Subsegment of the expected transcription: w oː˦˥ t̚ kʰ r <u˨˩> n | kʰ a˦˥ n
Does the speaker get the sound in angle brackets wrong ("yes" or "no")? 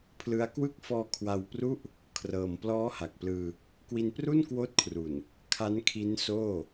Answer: no